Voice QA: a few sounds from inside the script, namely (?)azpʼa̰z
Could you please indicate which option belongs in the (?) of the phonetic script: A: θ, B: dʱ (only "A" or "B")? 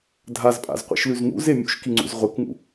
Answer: B